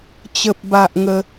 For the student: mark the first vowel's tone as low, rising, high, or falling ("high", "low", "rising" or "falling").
low